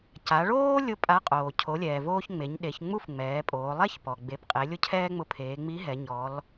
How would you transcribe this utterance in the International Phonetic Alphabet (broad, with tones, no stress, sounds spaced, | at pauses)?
c a˩˧ ɭ oː˥ lʲ ʊ˧ pʼ a˧˥ qʼ oː˩ cʰ o˩˧ lʲ ɛː˩ v oː˧ ç ŋ͡m e˩˧ ɲ ɗ e˩˧ ç ŋ͡m u˥ f ŋ͡m ɛː˩˧ pʼ oː˩˧ lˠ ɛ˥ ç p ɔ˩ ɡ͡b e˩˧ p qʼ e˩˧ lʲ ʊ˥ cʰ ɛː˥ ŋ͡m ʊ˧˥ pʰ eː˩˧ ŋ͡m i˧˥ ɦ ɛ˩˧ ɲ ɔ˧˥ l